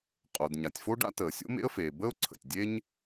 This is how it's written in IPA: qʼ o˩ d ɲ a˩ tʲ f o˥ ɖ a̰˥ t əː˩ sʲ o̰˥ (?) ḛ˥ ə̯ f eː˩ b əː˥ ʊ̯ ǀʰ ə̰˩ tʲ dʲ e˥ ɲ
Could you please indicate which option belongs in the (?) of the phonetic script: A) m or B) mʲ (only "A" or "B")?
A